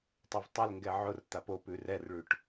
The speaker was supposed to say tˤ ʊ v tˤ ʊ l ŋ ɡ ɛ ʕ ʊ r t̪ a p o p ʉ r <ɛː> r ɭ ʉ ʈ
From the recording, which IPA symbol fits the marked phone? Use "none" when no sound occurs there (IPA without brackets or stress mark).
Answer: ɛ